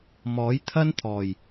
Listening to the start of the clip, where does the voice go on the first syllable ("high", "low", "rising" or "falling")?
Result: rising